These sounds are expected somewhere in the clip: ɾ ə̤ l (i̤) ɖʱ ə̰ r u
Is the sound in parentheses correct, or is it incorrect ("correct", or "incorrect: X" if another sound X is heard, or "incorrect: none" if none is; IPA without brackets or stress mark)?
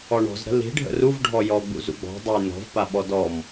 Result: correct